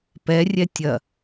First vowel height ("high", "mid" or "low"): mid